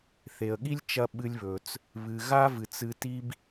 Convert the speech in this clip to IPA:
θ e˩ ə̯ ɠ i˥ lʲ t͡ʃ ɐ˧ ɓ ɨ˧ lʲ β ɵ˩ t͡s | β ɨ˩ ɣ a˥ v ɨ˩ t͡s ɨ˧ t i˥ b

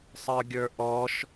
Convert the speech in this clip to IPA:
sˤ ə˞ ɡʲ ə˞ ʔ ɔ ʃ

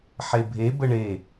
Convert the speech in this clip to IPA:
ħ e bʱ e b ə ɳ e

